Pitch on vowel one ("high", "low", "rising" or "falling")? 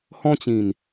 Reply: high